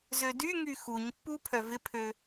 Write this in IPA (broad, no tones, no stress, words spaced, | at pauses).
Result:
zødyŋy xuɲpːu pʰœvɪpʰø